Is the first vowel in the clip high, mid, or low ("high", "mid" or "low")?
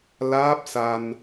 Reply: low